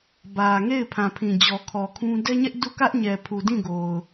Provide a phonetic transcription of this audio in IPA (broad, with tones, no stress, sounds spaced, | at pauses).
b ä˨ ŋ e˦˨ ɪ̯ pʰ ã˨ pʰ ĩ˨ d͡ʑ ɔ˨ kʰ ɔ˨ kʰ ũ˦ d ɛ˦ ɲ ɛ˦ ʔ d u˦˨ k ä˦ ʔ ɲ ɛ˨ pʰ u˨ d ĩ˦˨ ɡ o˨ ʊ̯